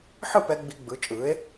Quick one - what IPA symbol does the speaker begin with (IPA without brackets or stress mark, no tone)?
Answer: ħ